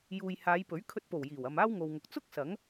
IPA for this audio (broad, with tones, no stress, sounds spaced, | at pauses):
j uː˨ j h aː˨˧ j p ɵ˨˥ ɥ kʰ ɵ˧ t̚ p o˨˩ w j iː˨˩ w ɐ˨ m aː˥ w ŋ o˨ w ŋ ʊ˨ k̚ t͡s ʊ˥ k̚ s ɐ˨˥ ŋ